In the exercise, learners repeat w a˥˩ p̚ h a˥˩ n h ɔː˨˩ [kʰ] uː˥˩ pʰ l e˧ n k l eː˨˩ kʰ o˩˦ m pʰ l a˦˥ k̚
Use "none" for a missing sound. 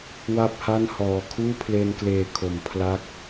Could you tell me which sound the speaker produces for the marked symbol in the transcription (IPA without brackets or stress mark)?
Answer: kʰ